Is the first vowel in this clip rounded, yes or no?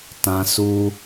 no